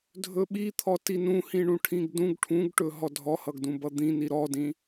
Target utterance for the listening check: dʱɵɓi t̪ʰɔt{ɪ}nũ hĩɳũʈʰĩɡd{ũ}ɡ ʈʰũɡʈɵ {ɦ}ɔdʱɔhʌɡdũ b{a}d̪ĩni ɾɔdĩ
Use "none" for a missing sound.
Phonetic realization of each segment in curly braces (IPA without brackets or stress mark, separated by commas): i, ũ, ɦ, ʌ